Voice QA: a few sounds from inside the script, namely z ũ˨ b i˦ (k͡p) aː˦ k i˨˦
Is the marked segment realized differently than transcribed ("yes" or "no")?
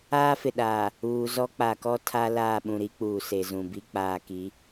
no